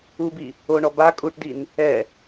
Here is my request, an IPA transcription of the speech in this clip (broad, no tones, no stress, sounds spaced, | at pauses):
u b i | o ɳ ɔ b a kʼ u ʈ d i n | ɛ